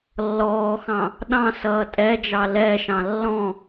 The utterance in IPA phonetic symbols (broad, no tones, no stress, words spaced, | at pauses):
lːɔːxɑ̃ | ɗɑ̃sʌː tʼɛ d͡ʒɑlɛʃɑ̃ lːɔ̃